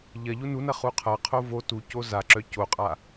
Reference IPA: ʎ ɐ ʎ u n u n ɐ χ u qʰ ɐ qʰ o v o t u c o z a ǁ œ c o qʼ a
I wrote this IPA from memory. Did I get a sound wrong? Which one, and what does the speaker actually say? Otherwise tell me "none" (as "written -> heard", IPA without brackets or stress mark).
none